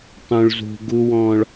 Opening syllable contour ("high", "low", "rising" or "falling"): high